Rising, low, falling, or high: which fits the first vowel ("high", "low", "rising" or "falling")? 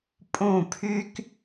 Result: falling